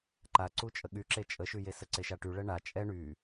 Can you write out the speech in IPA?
ǃ a ǀ u t͡ʃʼ ə ɠ y ǁ e t͡ʃʼ ə ʃ y j e s ə ǀ e ʃ a ʈ y ɭ ɛ ɳ a t͡ʃʼ ɛ ɳ y

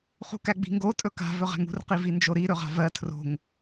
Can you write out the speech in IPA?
χ ṳ k æ ɡ͡b i̤ ŋ ɡ o tʼ ɵ k a̤ v ɵ ʁ æ̤ ŋ ṳ r q i v i n d͡ʒ o ɾ i ɾ ɵ ʁ a̤ v ɜ tʰ r o̤ ŋ

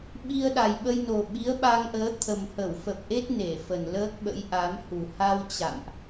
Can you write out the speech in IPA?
ɓ i˧ ə̯ ɗ a˨˩ j ɓ ə˧ j n o˨˩ ɓ i˨˦ ə̯ ɓ a˧ ŋ ʔ əː˨˦ t̪ʰ ə˨˩ m h ə˧˩ w f ə˨˩ p̚ ʔ e˦˥ t̚ n e˧˩ f ə˨˩ n l əː˦˥ k̚ ɓ ə̰˧˥ j ʔ a˨˦ m h u˨˩ h a˧ w t͡ɕ a̰˧˨ m ʔ

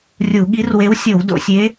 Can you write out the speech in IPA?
rʲ u˧˩˧ ɠ i˧˥ r w e˧˥ w sʲ o˧˩˧ w d o̰˧˩˧ sʲ e˧˥

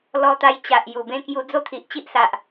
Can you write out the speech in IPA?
l ɔ˧ t̪ a˧ j t͡ɕ a˨ ʔ j u˨˩ b ẽ˦ k j u˧ d͡z o˦ t̪ʰ i˨ ʔ t͡ɕ i˦ ʔ s a˨ ʔ

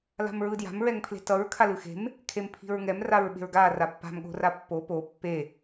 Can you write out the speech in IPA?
l a̤ m ɹ ɯ d j a̤ m ɹ ɛ ŋ pʰ l e̤ t ʌ ɹ kʰ a l ɯ x e̤ m | kʰ e m pʰ i̤ ɹ ŋ ɛ m r a ɹ ɓ e̤ ɹ ɡ a r a pː a̤ m ɠ o̤ r a pː o p o pː e

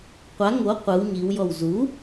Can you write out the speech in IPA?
qʷ a ŋ o qʷ ɯ w ɲ i w j ɔ w z u

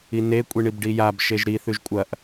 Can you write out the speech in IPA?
i n e kʷʼ i ɳ i b ɖ i j a b ʃ e ʒ ɾ i θ ʉ ʒ kʷʼ ɐ ʔ

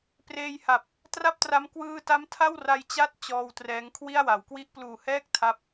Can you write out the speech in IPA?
p r eː˧ j h a˨˩ p̚ | t r a˥˩ p̚ t r a˦˥ m k w ɯː˧ t a˦˥ m tʰ a˥˩ w r a˧ j t͡ɕ a˥˩ t̚ t͡ɕ ɔː˧ w t r ɛː˦˥ ŋ kʰ w i˥˩ a̯ w a˩˦ w k w i˦˥ ʔ p l uː˨˩ h ɛː˥˩ k̚ tʰ a˦˥ p̚

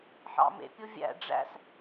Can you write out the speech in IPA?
ħ ɑ̰ m ḛ pʲ o vʲ æ̰ ɖ͡ʐ æ̰ s

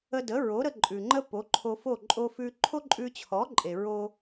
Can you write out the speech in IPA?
ə˧ d ə˩˥ ɹ o˩˥ ɾ ə˧ ǃʼ ʉ˩ ŋ͡ǃ ə˥ p o˩˥ ǃʰ o˧ f o˥˩ ǃʼ o˧ f ʉ˧ ǃʰ o˥ ǃʼ ʉ˧ t͡ɕʰ ɔ˩˥ ǃʼ e˩ ɹ o˧

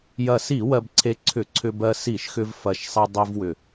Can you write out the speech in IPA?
j ɐ˨˩ s i˧˩˧ w ɜ˧ b ǀʰ e˧ ǀʰ ʏ˧˩˧ ǀʰ ʏ˧ b ɜ˧ s i˧˩˧ ʃ x ʏ˧ v f ɐ˨˩ ʃ sˤ e˧ dˤ i˧ v w ʏ˨˩

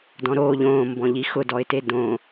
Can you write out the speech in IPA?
d ɔ̃ ɾ oː ʎ õː m b ɔ̃ ʎ i x ʊ d ɔ ɪ̯ t e d õ

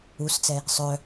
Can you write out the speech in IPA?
u s t͡s ɛ | sˤ œ

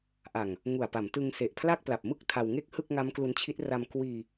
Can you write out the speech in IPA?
ʔ a˨˩ ŋ | ŋ u˨˩ a̯ p a˩˦ m t ɯ˧ ŋ s e˨˩ ʔ pʰ l a˥˩ k̚ p l a˨˩ p̚ m ɯ˥˩ k̚ tʰ a˧ w ŋ e˥˩ k̚ h ɯ˥˩ k̚ ŋ a˦˥ m k l u˧ n t͡ɕʰ i˦˥ t̚ r a˧ m k w iː˧

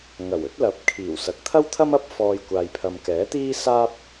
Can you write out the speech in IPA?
ŋ ɐ˨˩ w ɵ˨˥ t̚ l ɐ˨˥ p̚ kʰ iː˨˩ w s ɐ˨ k̚ t̪ʰ ɐ˥ w t̪ʰ ɐ˥ m ɐ˥ p̚ f ɔː˧ j kʷ aː˨ j pʰ ɐ˨ m k ɛː˨˥ t̪ iː˥ s aː˥ p̚

